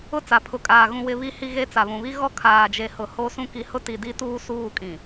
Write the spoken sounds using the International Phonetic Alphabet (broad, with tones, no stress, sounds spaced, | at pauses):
ʊ˦˨ t͡s a˨ pʰ ʊ˨ kʼ aː˨ ɣ ũ˨ w ɪ˨ β i˨ h i˨ ɣ e˦ t͡s a˨ β ũ˨ β i˦ ɣ ɔ˦˨ kʰ aː˨ d͡ʒ e˨ h ʊ˨ h o˦ s ũ˦ k i˨ h ʊ˦ t i˨ d i˦ t uː˦ s uː˦˨ kʼ ĩ˨